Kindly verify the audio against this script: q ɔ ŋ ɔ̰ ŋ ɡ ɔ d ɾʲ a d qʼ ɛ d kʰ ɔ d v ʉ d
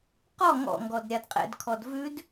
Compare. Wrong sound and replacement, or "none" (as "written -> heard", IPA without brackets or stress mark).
ɛ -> ɛ̰